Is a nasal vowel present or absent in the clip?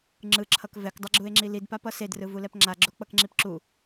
absent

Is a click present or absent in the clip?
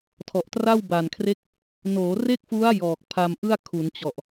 absent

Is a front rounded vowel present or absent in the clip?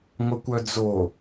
present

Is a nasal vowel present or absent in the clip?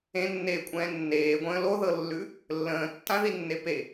present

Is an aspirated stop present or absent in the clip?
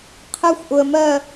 present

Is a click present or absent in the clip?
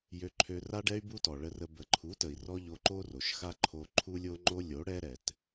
present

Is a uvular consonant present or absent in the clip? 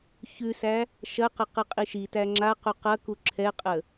present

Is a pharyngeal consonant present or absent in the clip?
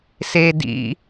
absent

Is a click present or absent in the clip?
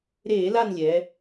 absent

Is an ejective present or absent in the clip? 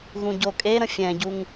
present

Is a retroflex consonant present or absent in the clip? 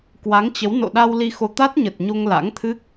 absent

